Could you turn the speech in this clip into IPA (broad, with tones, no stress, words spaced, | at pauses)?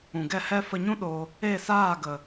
ũ˨ɡɛ˦˨hɛ˦ fə˧ɲũ˦ ɗo˧ | e˦˨saː˦˨ɡə˨